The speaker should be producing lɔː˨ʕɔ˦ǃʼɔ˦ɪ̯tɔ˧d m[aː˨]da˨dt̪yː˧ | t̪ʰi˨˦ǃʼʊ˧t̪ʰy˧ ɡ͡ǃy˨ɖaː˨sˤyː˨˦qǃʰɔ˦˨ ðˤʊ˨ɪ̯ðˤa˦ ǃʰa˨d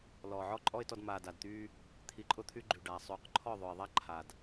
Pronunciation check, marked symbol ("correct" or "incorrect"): correct